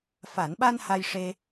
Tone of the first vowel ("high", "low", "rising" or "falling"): low